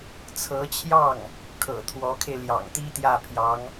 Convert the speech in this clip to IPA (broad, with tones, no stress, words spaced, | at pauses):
t͡sʰɤ˧˥t͡ɕʰjɑ˥˩ŋ | kʰɤ̰˨˩ t̪ʰwɔ˧˥kʰe˧ɪ̯ ljɑ̰˨˩ŋt̪i˥ t̪jä˥˩pʰjɑ˧˥ŋ